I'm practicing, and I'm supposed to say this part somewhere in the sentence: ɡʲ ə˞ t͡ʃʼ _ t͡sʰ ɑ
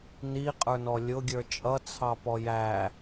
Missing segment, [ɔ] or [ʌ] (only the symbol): ʌ